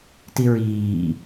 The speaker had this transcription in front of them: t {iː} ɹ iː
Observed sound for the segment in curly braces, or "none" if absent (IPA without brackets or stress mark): i